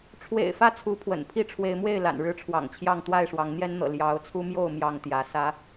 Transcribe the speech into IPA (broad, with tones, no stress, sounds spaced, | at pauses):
ʈ͡ʂʰ w ḛ˨˩ ɪ̯ f ä˥˨ t͡sʰ u˨˦ pʰ w ə̰˨˩ n pʰ i˥˨ ʈ͡ʂʰ w e˨˦ ɪ̯ m w e˥˨ ɪ̯ l a̰˨˩ n ɻ ɻ̩˥˨ ʈ͡ʂʰ w ɑ̰˨˩ ŋ t͡ɕʰ j ɑ˥˨ ŋ t̪ w a˥˨ ɪ̯ ʂ w ɑ˨˦ ŋ n̪ j ɛ˦ n n̪ ɤ̰˨˩ l j ɑ˨˦ ʊ̯ t͡sʰ u˦ m j o˥˨ ʊ̯ m j ɑ˥˨ ŋ t̪ j ä˨˦ s ä˨˦